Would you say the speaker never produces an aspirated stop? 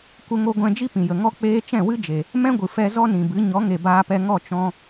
yes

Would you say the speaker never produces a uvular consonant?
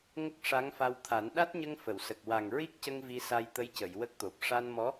yes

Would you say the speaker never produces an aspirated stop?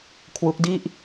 no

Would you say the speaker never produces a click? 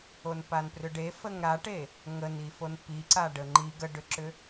no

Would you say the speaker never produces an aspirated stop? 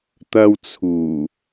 no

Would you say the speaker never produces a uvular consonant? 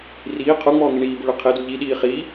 no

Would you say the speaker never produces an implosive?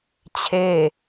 yes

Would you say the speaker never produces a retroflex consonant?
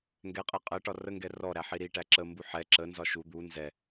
no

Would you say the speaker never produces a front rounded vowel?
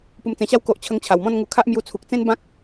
yes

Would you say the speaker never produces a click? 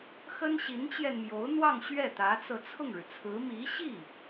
yes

